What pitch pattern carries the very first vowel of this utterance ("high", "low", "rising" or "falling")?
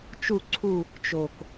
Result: falling